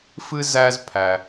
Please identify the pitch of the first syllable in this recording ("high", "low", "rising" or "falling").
high